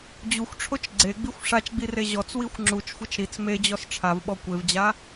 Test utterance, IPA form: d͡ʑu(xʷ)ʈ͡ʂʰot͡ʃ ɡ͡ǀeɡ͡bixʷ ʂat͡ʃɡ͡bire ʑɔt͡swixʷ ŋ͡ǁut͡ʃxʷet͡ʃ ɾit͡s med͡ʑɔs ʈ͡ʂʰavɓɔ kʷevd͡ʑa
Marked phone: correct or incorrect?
correct